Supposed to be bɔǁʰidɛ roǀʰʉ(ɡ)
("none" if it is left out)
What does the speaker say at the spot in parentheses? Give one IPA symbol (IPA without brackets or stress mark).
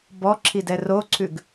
ɡ